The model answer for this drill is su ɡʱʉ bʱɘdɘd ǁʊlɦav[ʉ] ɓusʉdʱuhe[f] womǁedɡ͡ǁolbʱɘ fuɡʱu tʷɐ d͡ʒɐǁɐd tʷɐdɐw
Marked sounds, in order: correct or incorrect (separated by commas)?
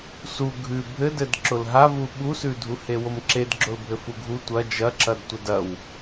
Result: incorrect, incorrect